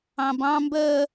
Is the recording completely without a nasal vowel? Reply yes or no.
no